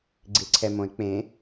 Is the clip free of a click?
no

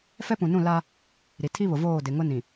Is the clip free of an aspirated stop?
no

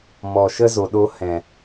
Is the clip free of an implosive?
no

